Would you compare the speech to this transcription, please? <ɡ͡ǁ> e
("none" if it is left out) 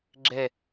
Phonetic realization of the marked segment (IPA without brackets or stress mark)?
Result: ɡ͡ǁ